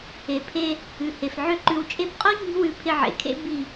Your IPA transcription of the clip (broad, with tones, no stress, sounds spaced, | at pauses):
e˨ pʰ e˧ | ʉ˨ h e˨ f ʕ ø˦ ǃ ʉ˧ w t͡ʃʼ e˧ p qʼ o˦ ɲ i̤˦ w ʉ˧ pʰ ɪ˧ ʕ ḛ˨ kʰ ḛ˦ b i˦˨